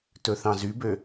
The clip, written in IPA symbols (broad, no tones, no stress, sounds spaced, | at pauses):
t ɵ θ ɑ̃ z y b ø